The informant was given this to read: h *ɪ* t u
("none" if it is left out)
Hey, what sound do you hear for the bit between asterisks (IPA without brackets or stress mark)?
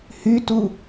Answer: y